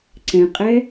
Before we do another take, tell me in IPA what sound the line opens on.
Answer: ǀ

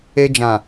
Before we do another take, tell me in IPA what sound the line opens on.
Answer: e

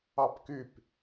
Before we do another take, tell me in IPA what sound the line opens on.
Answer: ɑ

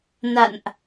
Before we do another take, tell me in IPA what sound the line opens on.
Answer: n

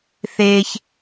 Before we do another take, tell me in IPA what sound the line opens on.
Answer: θ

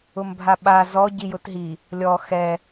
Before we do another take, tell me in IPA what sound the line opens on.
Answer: ʊ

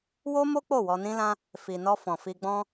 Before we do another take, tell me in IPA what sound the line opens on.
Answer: w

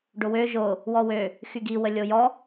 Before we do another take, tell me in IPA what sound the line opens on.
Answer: ɖ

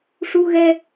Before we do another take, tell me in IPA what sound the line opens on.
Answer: ʂ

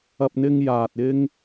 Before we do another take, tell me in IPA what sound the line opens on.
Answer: ɐ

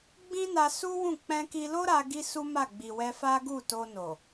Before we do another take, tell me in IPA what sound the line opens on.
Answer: ɡ͡b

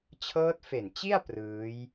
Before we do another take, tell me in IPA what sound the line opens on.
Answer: t͡ɕʰ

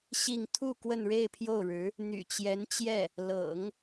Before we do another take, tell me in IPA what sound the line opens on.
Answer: ɕ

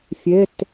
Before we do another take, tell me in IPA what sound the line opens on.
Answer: fʲ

